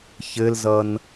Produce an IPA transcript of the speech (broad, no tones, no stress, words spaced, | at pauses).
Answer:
çɘlzʌn